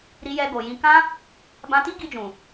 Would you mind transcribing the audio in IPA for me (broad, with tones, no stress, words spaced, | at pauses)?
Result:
ɾi˧jɛ˧ɡo˨jĩ˧ kã˦ | bã˧ti˦ɡi˧d͡ʒũ˨